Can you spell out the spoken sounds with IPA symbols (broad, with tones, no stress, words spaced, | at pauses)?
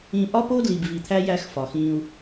ĩ˨ ʔɒ˦po˦ dli˨bvi˨t̪ʰæ˦ jæ˦xfɒ˨xĩ˦u̯